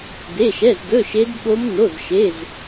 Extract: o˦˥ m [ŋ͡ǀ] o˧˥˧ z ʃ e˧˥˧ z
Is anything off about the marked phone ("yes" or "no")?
yes